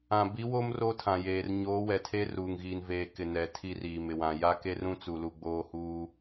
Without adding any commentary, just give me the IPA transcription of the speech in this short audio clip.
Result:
ã˨ b i˨˦ w o˦ m r o˦ tʰ ã˨ j eː˨ r ɲ oː˨˦ w ɛ˨ tʰ e˦ r uː˨ ŋ ɣ iː˨ n v eː˨ k ɪ˨ n ɛ˨ tʰ i˦ r iː˨ m ɪ˨ w ã˨ j a˦ k e˦ r ũ˦ t͡s u˨ l u˨ ɡ͡b oː˦ h uː˦

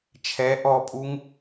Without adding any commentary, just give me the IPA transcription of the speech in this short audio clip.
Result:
t͡ʃʰ ɛ ʔ ɔ pʼ u ŋ

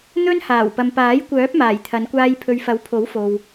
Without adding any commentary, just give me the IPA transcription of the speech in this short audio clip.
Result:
n̪ ɵ˥ n h aː˨˩ w p ɐ˨ m p aː˨˥ j kʷ œː˨˥ p̚ m aː˨˩ j t̪ʰ ɐ˨˧ n kʷ aː˧ j pʰ ɵ˨ ɥ f ɐ˨˥ w pʰ o˨˥ w f o˨ w

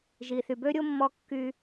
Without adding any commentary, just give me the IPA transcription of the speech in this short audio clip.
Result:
ʒ i˩ θ y˩ b ø˥ ɾʲ o˥ mː ɔ˧ kː y˧

